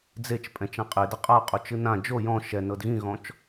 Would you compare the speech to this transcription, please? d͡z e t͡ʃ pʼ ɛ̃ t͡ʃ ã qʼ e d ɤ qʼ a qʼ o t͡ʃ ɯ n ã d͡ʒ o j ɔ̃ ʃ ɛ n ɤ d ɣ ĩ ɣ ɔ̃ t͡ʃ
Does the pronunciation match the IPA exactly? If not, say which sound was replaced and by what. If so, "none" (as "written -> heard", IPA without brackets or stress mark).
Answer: none